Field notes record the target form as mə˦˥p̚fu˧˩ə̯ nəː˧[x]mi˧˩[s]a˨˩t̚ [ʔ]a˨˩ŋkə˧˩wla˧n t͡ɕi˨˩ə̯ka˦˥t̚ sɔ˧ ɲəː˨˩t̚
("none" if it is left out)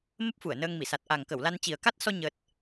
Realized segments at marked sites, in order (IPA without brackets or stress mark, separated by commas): ŋ, s, ʔ